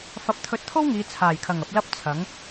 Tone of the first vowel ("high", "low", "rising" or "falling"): rising